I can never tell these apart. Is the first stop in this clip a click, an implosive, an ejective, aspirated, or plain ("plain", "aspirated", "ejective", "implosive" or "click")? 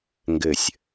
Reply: plain